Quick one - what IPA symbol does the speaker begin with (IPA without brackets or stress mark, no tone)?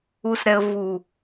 u